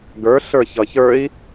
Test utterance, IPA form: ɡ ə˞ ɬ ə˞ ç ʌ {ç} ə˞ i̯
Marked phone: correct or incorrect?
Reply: correct